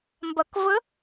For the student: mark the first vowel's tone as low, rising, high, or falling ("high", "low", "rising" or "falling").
low